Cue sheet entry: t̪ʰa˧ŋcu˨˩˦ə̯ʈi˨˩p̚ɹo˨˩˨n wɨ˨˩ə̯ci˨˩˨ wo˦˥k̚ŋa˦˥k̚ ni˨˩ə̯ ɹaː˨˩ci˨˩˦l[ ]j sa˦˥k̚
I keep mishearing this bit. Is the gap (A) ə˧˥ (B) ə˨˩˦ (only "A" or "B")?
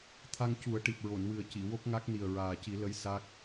A